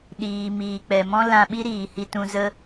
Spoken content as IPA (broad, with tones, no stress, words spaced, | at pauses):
ɗiː˨ miː˨k͡pɛ˨mɔ̃˦ lã˧ɓi˦ ɾiː˨ hi˧tũ˧ zə˦